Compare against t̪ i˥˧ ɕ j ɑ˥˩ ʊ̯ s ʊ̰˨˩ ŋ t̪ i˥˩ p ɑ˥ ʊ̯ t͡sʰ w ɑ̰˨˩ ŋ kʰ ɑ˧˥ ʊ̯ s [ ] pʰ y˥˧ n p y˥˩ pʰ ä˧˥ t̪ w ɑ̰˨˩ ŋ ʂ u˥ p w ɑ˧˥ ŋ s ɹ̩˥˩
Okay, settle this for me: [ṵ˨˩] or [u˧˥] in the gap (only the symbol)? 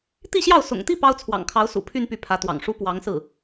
ṵ˨˩